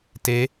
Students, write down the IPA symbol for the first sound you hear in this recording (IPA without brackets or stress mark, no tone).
t